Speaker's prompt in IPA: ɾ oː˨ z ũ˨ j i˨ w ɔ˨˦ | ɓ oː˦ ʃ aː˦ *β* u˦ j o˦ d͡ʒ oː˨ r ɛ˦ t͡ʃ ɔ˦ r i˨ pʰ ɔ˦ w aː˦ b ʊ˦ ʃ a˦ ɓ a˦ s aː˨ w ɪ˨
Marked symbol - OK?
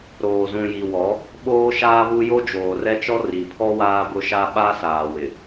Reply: yes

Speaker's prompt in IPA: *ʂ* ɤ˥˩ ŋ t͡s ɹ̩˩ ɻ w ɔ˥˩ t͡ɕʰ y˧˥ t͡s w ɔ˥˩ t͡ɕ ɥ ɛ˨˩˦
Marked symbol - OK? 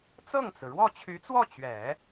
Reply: no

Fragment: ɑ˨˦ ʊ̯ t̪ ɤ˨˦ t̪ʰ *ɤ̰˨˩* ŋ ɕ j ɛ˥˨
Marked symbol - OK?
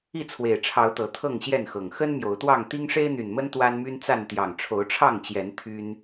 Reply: no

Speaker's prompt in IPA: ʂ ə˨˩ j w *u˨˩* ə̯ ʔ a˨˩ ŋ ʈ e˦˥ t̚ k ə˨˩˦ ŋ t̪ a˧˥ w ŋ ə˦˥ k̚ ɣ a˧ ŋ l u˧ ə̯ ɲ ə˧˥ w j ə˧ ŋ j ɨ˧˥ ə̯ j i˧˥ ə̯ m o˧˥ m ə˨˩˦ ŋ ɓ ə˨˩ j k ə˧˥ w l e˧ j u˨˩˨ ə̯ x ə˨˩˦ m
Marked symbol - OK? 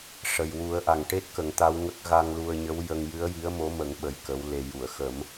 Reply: no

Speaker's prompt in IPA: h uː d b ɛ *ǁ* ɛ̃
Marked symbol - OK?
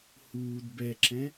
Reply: yes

